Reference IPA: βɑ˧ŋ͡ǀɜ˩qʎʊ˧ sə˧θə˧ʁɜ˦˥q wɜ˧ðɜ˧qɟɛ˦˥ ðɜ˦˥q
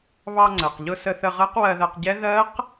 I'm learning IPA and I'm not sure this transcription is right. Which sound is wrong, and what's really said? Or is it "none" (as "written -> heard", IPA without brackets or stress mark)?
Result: none